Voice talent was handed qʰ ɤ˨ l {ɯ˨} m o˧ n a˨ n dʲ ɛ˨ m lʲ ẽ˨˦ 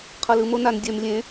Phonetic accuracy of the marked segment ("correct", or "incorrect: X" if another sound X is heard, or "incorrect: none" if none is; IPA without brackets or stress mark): correct